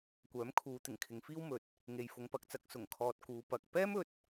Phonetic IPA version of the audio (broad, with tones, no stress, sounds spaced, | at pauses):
kʷ œː˨˥ m kʰ uː˨˧ t̪ ɪ˨˩ ŋ kʰ ɪ˨˧ ŋ f iː˥ w m ɵ˨ t̚ | ŋ e˨ j f ʊ˨˧ ŋ p ɐ˨ k̚ t͡s ɐ˧ k̚ s ʊ˨˩ ŋ kʰ ɔː˨ t̚ k uː˨˧ p ɐ˨ k̚ p ɛː˥ m ɵ˧ t̚